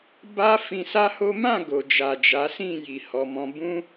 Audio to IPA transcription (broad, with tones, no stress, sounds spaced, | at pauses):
b a˦ f ĩ˧ s a˦ h o˦ m ã˦˨ ɡ o˨ d͡ʒ a˨ d͡ʒ a˨˦ s ĩ˦˨ j i˧ h ɔ˧ m ɔ̃˦ b ũ˦